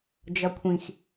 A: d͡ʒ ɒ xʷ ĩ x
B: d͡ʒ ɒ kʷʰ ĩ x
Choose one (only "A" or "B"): B